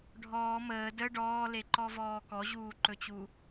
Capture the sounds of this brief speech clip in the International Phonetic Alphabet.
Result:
ɖʱɔː məː də ɖɔːleǃɔvɔː kɔʑuːǃɵt͡ɕu

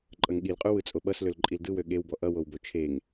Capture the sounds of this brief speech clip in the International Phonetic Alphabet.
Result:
ǃʼʌŋɠilqʼu wɯt͡sʼoɓʌs lølǃʼildɯwø ɠewbɔ ʔʌwowbo t͡ʃʰeŋ

